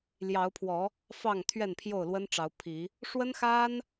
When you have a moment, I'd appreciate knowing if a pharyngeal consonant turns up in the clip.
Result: no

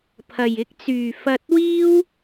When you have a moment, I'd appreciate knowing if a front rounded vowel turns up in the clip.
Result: yes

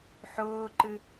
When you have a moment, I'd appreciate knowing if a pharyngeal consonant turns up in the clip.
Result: yes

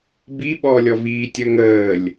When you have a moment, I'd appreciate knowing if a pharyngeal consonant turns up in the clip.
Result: no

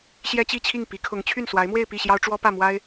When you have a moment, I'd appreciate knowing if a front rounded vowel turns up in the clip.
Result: yes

